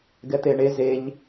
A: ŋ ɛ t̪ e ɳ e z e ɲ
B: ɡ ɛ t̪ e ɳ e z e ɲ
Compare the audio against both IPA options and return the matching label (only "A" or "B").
B